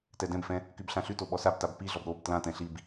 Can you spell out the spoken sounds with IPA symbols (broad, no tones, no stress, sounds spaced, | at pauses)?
t ɛ d ɛ̃ b f ɛ̃ | k y b ɬ ã ɬ y t o ɓ ɔ s a b t a b p i ɮ ɔ b ɾ o b t l ã t ɛ̃ ɬ i b